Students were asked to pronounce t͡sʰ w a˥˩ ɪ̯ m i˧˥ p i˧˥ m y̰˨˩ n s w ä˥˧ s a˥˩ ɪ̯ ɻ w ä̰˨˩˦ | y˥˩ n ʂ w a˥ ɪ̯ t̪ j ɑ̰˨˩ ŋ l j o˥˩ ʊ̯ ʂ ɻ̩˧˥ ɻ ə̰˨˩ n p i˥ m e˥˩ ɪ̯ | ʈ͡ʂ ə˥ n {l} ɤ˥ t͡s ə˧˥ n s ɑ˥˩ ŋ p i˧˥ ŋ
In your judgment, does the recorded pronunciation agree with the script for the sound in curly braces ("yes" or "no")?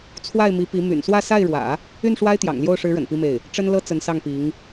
yes